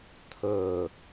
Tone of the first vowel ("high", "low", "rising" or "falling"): low